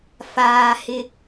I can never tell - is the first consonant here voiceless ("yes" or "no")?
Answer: yes